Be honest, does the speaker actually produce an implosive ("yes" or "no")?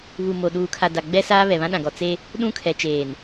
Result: yes